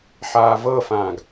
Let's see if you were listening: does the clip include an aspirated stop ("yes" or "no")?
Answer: no